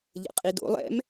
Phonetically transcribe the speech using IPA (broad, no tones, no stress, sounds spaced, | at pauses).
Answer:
ʎ ə̰ qʼ i d o̰ lˠ ɛ̰ m